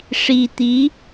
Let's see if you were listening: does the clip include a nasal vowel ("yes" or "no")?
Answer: no